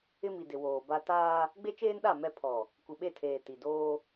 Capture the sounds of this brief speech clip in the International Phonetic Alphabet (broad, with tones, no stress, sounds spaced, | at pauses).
ɪ˦ m i˨ d ɪ˨ w oː˨ b a˦ t aː˦ | ɡ͡b e˦ t͡ʃ eː˦ n ɗ a˦˨ m ɛ˦˨ pʰ ɔ˨ | kʷ i˨ ɓ e˦˨ tʰ eː˨ t i˨ d oː˦